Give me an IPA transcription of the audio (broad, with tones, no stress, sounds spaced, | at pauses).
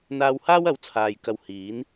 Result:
n̪ aː˧ w h aː˥ w ɐ˨˥ w t͡sʰ aː˨ j k ɐ˧ w h iː˨˥ n